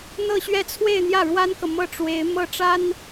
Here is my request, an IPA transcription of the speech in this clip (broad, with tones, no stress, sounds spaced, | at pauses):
n̪ ɤ˥˧ ɕ ɥ ɛ˥˧ t͡sʰ w e˥˧ ɪ̯ n̪ j ä˥˩ ɻ w a˥ n k ɤ˨ m ɤ˥˩ ʈ͡ʂ w e˧˥ ɪ̯ m ɤ˥˩ ʈ͡ʂ a˥ n